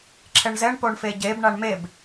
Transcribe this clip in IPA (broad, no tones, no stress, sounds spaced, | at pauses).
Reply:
ǁʰ ɛ ɳ z ɛ ɳ p o ɳ f e ɟ e b ɳ a ɳ m e b